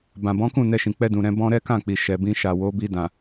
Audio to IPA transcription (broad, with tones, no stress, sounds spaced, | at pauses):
b ã˨ b ɔ̃˨˦ k ũ˦˨ n ɛ˧ ʃ ĩ˨ k͡p ɛ˧ d ũ˨ ɾ ɛ̃˧ b ɔ̃˦ ɾ ɛ˦ k ã˦˨ k͡p i˨ ʃ ɛ˨ b ĩ˧ ʃ a˨ w o˨˦ b i˧ d ã˨